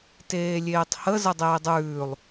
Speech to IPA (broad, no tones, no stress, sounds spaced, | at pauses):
t eː lʲ eː tˤ h ə z ə dˤ eː dˤ ʉː lˠ